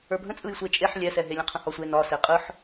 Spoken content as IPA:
ə˞ bʱ ə̃ t͡sʼ ɯ j sʷ e t͡ʃʼ e ħ lʲ ɛ s ɛ ɦ e lʲ ə̃ qʰ ə̃ h ɒ sʷ e n ɒ s e qʼ ɯ ħ

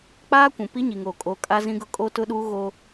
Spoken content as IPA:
k͡p aː˦ kʷ ũ˨ p i˦ ɲ i˨ ŋ oː˨ kʼ o˨˦ kʼ a˦ z ĩ˦ ɡ ʊ˦ kʼ o˦ t ʊ˦ ɗ uː˦ ɣ o˦

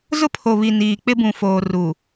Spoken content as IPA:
z ʊ˦ pʰ o˨ β i˨ n iː˨ k͡p ɪ˦ b ũ˨ f oː˨ r u˨

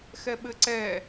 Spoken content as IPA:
x ɛ ɓ ɘ ǀ ɛ

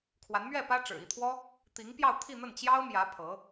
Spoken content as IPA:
kʰ w a˧˥ n m ɥ ɛ˥˩ p ä˥ ʈ͡ʂ ɻ̩˨˩ i˥˩ t̪ʰ w ɔ˥ | t̪ i˧˥ ŋ p j ɑ˥˧ ʊ̯ t̪ʰ i˥˧ n̪ ə˥˩ n t͡ɕ j ɑ˥ ʊ̯ m j ä˧˥ pʰ ɤ˧˥

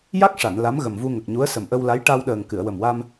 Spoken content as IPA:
j a˦˥ k̚ ʂ a˨˩˨ n l a˧˥ m ɣ ə˨˩ m v u˧ ŋ ə˨˩ k̚ ɲ u˧˥ ə̯ s ə˨˩ m ʔ ə˧ w l a˧˥ j ʈ a˧ w ɗ əː˨˩ ŋ k ɨ˨˩˨ ə̯ w ə˨˩ m w a˧ m

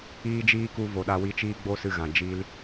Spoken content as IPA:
iː˦ d͡ʒ iː˦ k u˧ v o˨ ɗ a˧ w i˧ t͡ʃ iː˦ ɡ͡b o˦ s ɨ˧ ɣ ã˨ d͡ʒ i˧ l

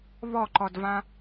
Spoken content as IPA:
β ɔ ǃ ɔ d v ã

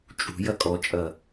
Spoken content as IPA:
t͡ʃʼ ṳ j ɐ kʼ ɔ t͡ʃʼ ɐ

